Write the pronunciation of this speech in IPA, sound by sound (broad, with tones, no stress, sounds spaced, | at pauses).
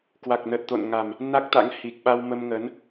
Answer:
k w a˨˩ k̚ n əː˨˩ t̚ t̪ o̰˧˨ n ŋ a˨˩ m | n a˦˥ k̚ t̪ a̰˧˥ ŋ h i˨˩ k̚ ɓ a˧ w m ə˧ m ŋ əː˨˦ n